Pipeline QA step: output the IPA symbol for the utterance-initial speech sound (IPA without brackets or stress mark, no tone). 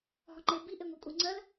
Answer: ɦ